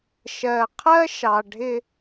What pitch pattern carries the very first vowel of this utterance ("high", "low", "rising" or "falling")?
low